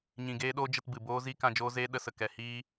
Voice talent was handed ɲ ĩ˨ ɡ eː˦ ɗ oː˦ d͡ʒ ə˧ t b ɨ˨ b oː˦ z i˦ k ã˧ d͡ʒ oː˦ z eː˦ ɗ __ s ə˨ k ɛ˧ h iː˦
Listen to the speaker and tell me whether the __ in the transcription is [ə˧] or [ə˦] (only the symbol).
ə˧